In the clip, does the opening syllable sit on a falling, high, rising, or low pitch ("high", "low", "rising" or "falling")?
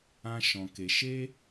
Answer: high